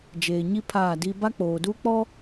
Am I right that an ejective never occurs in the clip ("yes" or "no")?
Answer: yes